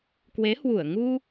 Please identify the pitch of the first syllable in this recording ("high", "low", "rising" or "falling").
rising